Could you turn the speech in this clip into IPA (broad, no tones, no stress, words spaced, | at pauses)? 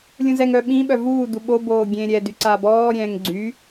lʲũzɛŋ œ ɓĩ ɓœvuː duɓo boːɡʲẽːɾʲɛ dyǀaːbɔː ɾʲɛ̃ːŋɡ͡ǀy